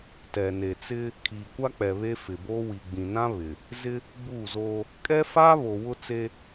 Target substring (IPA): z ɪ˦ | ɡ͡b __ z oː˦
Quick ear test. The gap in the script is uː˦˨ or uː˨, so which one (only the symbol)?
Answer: uː˦˨